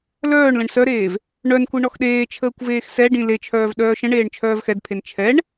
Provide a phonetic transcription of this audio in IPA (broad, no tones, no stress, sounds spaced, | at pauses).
l œː ɳ l ə̃ ɳ s œ ɾ eː v | ɳ œ n kʷ i ɳ ɔ x ɗ eː t͡ʃʰ əː kʷ v eː x s ɛ ɖ ĩ l e t͡ʃʰ œː v ɗ œː ʃ ə̃ ɳ eː ɳ t͡ʃʰ œː v x ɛ d pʰ e n t͡ʃʰ ɛ ɳ